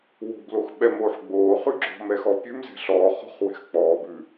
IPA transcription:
w o̤ b l o x ɓ ɛ m oː ħ ɡ͡b oː χ ʉ ɡ͡ǁ ɔ̤ m ɛ x ɔ pʲ ʉ m z ɛ̤ ɬ ɔː χ ɔ̤ χ w ɛ̤ x k͡p ɔː b ʉ

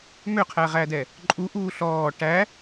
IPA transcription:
m ø qʰ æ ʁ æ d ɛ | ǃʼ u ʔ uː ɬ ɔː ʈ æ

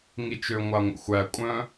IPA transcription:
ŋ i t͡ʃ ø ŋʷ a ŋʷ ə̰ xʷ æ kʷʼ œ̃

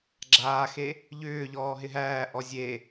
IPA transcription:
ɡ͡ǁ aː x e | ʎ ʏː ʎ ɔː ɦ ɪ ɦ æː ʔ ɔ zʲ e

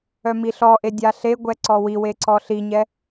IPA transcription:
œ m i ɬ ɔ ʔ e dʲ a ɬ e ɡʷ ɛ ǀ ɔ w i w e ǀ ɔ ɬ i ɲ ɛ

